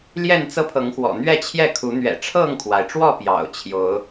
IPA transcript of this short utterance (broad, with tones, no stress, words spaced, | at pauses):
ljɛ˥˨nt͡sɤ˦pʰɤ˨˦ŋxwɔ̰˨˩ n̪ɥɛ˥˨t͡ɕʰjɛ˥˨kʰu˨˦ n̪ɥɛ̰˨˩ʈ͡ʂʰɤ˥˨ŋkʰwa˩ɪ̯ʈ͡ʂwɔ˥˨ pjɑ̰˨˩ʊ̯t͡ɕʰjo˨˦ʊ̯